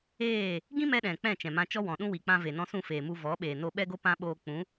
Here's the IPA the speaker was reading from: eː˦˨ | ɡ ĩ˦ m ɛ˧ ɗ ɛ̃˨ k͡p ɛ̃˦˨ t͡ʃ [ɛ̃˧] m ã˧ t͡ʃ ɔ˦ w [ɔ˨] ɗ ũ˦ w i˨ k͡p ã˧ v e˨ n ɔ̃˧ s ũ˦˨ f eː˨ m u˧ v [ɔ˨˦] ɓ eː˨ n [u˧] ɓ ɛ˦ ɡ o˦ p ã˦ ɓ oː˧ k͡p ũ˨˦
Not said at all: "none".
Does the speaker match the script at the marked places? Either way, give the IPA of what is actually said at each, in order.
ɛ̃˨, ɔ̃˨, ɔ˨˦, o˧

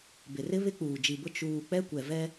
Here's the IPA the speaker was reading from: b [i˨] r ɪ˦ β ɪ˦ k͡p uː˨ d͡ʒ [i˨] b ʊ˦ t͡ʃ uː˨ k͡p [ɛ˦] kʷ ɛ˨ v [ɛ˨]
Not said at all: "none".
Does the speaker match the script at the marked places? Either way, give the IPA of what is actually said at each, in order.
ɪ˨, i˨, ɛ˦, ɛ˦

